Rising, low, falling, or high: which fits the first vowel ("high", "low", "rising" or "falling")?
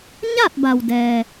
falling